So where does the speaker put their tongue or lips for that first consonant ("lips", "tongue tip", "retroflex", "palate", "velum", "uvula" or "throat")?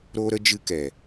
tongue tip